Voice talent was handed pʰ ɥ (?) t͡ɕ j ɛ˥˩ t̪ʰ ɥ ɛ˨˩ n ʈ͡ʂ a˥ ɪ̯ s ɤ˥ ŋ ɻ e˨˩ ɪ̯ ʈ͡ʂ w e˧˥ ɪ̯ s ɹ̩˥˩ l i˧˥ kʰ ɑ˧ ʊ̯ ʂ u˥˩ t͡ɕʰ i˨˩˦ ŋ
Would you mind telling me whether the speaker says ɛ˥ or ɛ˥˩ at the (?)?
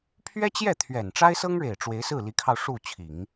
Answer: ɛ˥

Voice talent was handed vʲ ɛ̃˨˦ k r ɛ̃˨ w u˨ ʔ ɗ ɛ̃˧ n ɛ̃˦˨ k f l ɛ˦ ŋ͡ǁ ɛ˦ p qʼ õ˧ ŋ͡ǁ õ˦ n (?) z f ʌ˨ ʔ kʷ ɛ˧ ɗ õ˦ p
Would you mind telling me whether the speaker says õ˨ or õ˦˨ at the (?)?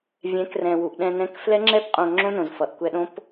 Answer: õ˨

